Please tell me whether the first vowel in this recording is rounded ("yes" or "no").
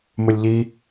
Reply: yes